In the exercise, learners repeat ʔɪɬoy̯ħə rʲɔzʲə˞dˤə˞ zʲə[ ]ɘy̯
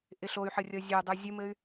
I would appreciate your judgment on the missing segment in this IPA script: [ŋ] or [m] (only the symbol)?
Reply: m